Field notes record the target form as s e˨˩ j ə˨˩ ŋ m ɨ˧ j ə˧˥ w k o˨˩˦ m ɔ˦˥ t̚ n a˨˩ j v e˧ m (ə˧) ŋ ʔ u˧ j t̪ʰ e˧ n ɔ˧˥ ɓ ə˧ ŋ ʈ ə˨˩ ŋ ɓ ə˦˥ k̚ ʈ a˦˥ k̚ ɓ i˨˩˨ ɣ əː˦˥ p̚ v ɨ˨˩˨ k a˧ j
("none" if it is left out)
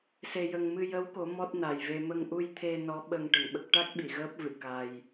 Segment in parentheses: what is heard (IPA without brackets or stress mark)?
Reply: ə˧